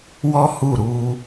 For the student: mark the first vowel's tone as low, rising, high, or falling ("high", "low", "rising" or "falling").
high